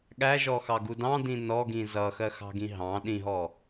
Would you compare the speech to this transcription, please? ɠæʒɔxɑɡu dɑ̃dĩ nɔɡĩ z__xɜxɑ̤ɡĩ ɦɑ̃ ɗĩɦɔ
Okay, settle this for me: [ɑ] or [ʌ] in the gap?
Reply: ʌ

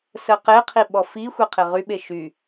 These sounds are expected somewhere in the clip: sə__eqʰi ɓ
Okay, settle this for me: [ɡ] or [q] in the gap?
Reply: q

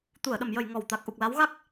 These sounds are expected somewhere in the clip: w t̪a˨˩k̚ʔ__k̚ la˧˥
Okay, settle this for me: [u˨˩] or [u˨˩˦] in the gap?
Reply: u˨˩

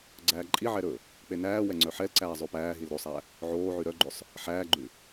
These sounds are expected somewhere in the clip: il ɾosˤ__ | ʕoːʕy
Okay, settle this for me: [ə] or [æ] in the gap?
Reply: æ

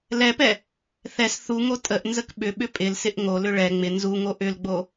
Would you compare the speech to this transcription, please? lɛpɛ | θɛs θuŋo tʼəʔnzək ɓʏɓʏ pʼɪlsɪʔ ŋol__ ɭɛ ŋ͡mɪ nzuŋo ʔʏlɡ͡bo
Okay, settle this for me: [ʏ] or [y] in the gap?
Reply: ʏ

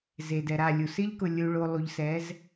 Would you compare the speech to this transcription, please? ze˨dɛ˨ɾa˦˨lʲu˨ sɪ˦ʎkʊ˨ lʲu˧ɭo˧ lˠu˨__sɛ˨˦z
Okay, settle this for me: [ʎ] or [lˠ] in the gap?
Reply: ʎ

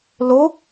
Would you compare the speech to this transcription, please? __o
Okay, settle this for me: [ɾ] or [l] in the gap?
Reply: l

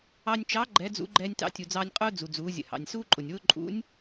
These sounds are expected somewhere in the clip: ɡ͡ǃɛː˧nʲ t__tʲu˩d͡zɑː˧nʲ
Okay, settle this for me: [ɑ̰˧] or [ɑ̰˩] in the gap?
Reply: ɑ̰˧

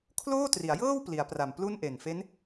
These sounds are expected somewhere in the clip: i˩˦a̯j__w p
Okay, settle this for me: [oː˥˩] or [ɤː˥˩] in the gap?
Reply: ɤː˥˩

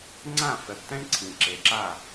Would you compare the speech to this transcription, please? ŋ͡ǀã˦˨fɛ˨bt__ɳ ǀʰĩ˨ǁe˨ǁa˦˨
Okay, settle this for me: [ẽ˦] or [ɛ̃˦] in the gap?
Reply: ɛ̃˦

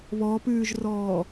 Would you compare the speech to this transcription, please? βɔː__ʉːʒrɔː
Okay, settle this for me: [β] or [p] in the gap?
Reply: p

